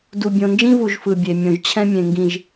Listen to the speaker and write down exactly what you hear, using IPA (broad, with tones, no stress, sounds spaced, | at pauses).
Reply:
d u˨ bʲ õ˨ n d͡ʒ ĩ˦ v u˨ ʒ f ɯ˨ bʲ e˨ mʲ õ˨ ʒ t͡ɕʰ ɛ̃˦ mʲ ẽ˨ ŋ ɡ ĩ˨ ʒ